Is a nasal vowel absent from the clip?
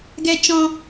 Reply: no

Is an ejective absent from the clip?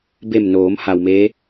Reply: yes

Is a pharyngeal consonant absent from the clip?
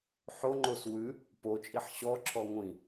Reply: no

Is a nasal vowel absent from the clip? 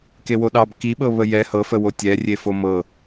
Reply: yes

